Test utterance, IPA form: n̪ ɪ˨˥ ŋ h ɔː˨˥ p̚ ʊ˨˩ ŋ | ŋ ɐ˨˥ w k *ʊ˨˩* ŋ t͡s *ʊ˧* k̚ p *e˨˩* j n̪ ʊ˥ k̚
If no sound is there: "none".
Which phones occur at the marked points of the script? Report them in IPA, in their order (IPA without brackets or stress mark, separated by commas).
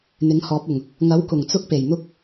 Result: ʊ˨˩, ʊ˥, e˨˩